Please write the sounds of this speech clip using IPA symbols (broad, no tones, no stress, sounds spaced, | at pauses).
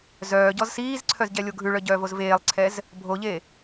z œː ɟ ɔ z s iː z ǀʰ œ z ɟ ɛ lʲ o ɡʱ ʉ ɭ œ ɟ œː v o z v eː lˠ ǀʰ ɛ z | bʱ o ʎ e